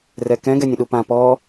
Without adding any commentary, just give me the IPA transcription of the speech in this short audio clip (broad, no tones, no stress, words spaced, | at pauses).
rɛkɛ̃ ɡɛnʲə̃ɗupã pɔ